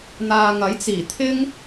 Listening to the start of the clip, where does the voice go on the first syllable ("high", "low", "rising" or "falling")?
low